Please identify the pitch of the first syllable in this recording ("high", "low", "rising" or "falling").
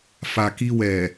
low